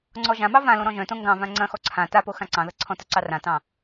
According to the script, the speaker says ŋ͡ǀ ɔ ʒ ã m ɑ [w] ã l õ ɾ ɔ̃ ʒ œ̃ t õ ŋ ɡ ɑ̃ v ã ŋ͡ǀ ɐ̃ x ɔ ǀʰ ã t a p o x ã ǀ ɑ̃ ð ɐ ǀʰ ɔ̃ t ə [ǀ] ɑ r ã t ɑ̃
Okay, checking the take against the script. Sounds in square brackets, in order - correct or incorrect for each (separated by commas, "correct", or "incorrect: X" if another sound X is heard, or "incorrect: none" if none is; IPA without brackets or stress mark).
incorrect: v, correct